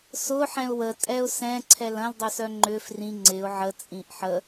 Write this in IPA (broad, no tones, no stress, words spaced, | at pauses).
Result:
sʊħɛ̃ʊ̯ wətʼɛʊ̯ sɛ̃ǀʰɛl ɐ̃ldˤœsœ ŋ͡ǃʏ frĩ ŋ͡ǀɪʊ̯ ʕət͡sʼĩʔ ħə